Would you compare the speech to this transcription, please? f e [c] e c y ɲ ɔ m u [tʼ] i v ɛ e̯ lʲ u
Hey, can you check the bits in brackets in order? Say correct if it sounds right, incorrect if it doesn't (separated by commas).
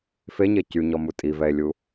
incorrect, correct